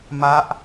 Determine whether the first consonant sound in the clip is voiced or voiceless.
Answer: voiced